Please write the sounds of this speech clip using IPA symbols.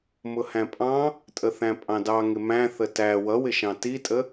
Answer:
m ʊ h æ̃ pʼ ɑ̃ | tʼ ə θ æ̃ pʼ ɑ̃ d ɑ ŋ ɪ m æ̃ θ ə t æ w ʌ w ɪ ʃ ɑ̃ t i tʼ ə

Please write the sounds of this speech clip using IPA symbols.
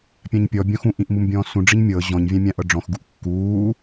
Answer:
pʲ ã ɲ pʲ ɔ bʲ ɔ̃ x ũ ʔ ĩ ʔ m u m bʲ ɔ̃ː s ũ ɖ͡ʐ i ɲ mʲ ɤ ʑ ɔ̃ ɲ vʲ ã mʲ ã ʔ ɤ ɖ͡ʐ ɔ̃ x ɡ u ʔ kː uː

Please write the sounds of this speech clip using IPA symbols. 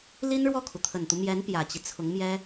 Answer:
l i˥ n ɻ w ɔ˥˩ kʰ u˩ t̪ʰ ə˨˩ n t̪ u˦ m j ɛ˧˥ n p j ä˨˩ t͡ɕ i˦ t͡sʰ ʊ˧˥ ŋ m j ɛ˥

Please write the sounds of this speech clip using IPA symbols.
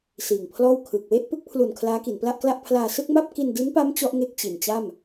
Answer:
s iː˨˩ ŋ pʰ l ɔː˥˩ w kʰ ɯː˨˩ k̚ w e˥˩ ʔ p ɯ˦˥ k̚ pʰ l u˨˩ n kʰ l aː˦˥ k i˩˦ n p l a˥˩ ʔ k l a˥˩ ʔ pʰ l aː˧ s ɯ˥˩ k̚ m a˥˩ p̚ k i˧ n d i˦˥ n p a˦˥ m t͡ɕ ɔ˦˥ ʔ ŋ e˥˩ k̚ t͡ɕ i˨˩ n t͡ɕ a˥˩ m

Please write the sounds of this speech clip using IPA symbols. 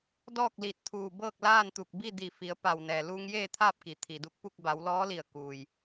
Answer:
d ɔː˥˨ k̚ l i˧˩ t̚ t̪ʰ uː˧˩ b ɤː˥˨ k̚ l aː˥˨ n t̪ u˧˩ k̚ b i˥˨ d i˧˩ f i˩˧ ə̯ p a˧˩ w n ɛː˩ l uː˧ ŋ j eː˥˨ t̪ʰ aː˥˨ p̚ k i˩ t̪ʰ i˩ d u˧ k̚ p u˥˨ k̚ b a˩˧ w l ɔː˧˥ l i˧˩ ə̯ k uː˩ j

